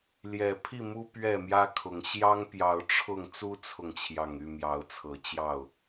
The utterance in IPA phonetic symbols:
l j ɛ˨˩ pʰ i˥˨ m u˦ p ɥ ɛ˥˨ m j ä˦ kʰ ʊ˨˦ ŋ ɕ j ɑ˦ ŋ p j ɑ˨˦ ʊ̯ ʈ͡ʂʰ ʊ˥˨ ŋ t͡s u˦ t͡sʰ ʊ˨ ŋ t͡ɕʰ j ɑ˨˩ ŋ y˥˨ m j ɑ˨˦ ʊ̯ t͡sʰ ɤ˨˦ t͡ɕ j ɑ˥˨ ʊ̯

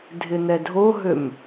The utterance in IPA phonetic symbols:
dʱ ɪ n̪ ɛ dʱ o ɦ ø m

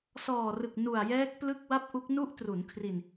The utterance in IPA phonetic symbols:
s ɔː˨˩ r ɯ˨˩ k̚ n u˨˩ a̯ j ɛː˦˥ k̚ p l ɯ˥˩ k̚ w a˥˩ p̚ ʔ u˦˥ k̚ n u˦˥ ʔ t r u˩˦ n kʰ r i˧ n

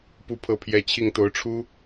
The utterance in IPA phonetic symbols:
p u˥˧ pʰ ɤ˥˩ pʰ j ɛ˥ t͡ɕʰ i˥˩ ŋ t̪ o˧˥ ʊ̯ ʈ͡ʂʰ u˥

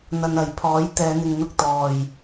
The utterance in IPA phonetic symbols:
n̪ ɐ˨ n ɐ˨˩ j pʰ ɔː˨˥ j t̪ ɛː˨˧ n̪ ɪ˨ ŋ n̪ ʊ˧ k̚ t̪ ɔː˨˩ j

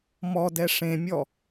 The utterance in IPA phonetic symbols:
m ɔ d ɛ ʂ ẽ mʲ ɔ

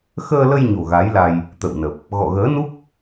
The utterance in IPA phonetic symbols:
x əː˧ l ə˧ j ɲ o̤˨˩ ɣ a˨˦ j l a˧ j | t̪ ə̰˧˨ w n ə˨˩ p̚ | ɣ ɔ̰˧˨ ɣ əː˨˦ n u˦˥ k̚

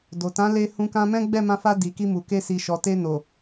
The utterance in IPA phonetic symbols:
d o˨ t ã˨˦ l e˧ h ũ˧ k ã˧ m ɛ̃˦ ɡ͡b ɛ˦˨ m ã˧ f a˧ d i˨ k i˧ m u˨ k e˧ s i˨ ʃ ɔ˨ t e˧ n o˨

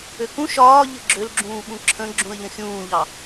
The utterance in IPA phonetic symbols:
ø k ũ ʃ ɒː ʎ ɘ ɡ͡ǁ ø l ɡ͡ǁ ũː ɓ ũ ǁʰ ə̃ ɡ͡ǁ ũ ə̯ ʎ ə̃ xʲ ũː ʎ ɑ

